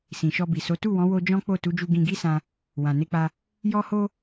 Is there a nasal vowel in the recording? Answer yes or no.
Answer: yes